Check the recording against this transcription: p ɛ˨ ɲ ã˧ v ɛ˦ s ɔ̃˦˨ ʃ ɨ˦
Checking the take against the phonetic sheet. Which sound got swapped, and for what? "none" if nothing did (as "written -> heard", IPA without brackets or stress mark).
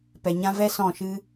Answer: none